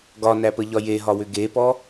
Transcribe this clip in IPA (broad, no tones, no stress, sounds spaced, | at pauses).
ɡ ɒ n æ p ə ʎ ɒ j e ɦ ɒ w ʏ ɡ e p ɔ